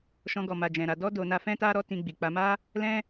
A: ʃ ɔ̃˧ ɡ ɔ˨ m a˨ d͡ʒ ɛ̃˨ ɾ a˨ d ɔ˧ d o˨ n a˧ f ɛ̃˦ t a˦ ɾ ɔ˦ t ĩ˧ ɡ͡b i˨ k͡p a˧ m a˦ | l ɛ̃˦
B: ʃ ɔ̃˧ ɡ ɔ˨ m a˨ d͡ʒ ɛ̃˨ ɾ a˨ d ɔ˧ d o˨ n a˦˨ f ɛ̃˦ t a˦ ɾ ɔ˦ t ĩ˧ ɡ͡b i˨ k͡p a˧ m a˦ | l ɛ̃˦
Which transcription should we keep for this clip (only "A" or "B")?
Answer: A